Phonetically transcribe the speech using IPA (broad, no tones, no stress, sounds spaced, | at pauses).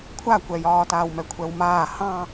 kʷʰ a kʷ ɛ j ɒː t aː w m ɛ kʷʰ ɛ w m aː h ɑ̃